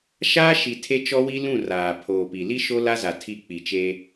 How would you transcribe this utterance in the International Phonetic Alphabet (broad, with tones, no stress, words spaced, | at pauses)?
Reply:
ʃaː˦ʃi˨ tʰe˦t͡ʃɔ˦wi˦ lũ˦˨ raː˨pʰoː˨pi˨ li˦ ʃo˦la˦za˨ tʰi˦˨ k͡pi˨t͡ʃe˦